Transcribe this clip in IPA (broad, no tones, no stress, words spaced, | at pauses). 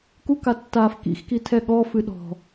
kukatːaːf kḭxki tʰɛɠɔ fɨɗɔ̤